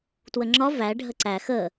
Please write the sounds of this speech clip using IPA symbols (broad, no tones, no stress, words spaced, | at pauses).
twəŋ͡ǁɒ væ ɖʱəǀæ xə